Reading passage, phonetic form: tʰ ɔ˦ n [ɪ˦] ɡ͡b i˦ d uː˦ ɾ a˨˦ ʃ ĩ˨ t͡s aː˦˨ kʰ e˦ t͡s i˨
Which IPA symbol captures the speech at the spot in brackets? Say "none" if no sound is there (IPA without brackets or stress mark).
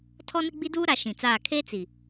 ɪ˦